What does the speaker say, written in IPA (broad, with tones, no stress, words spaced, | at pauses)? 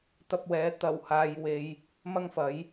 t̪ɐ˧p̚wɛː˨˥ t̪ɐ˨˩whaː˨j we˧j | mɐ˥ŋfɐ˨˥j